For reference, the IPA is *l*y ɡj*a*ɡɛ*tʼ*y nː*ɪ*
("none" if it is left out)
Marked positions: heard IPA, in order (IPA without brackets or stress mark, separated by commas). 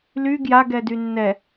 l, a, d, ɛ